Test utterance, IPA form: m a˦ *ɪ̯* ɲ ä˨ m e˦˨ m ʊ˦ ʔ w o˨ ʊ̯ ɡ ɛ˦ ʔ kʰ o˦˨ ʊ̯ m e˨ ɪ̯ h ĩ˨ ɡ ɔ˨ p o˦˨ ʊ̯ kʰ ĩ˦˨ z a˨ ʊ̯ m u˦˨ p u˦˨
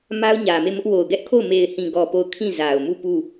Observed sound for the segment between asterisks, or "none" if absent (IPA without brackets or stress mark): ʊ̯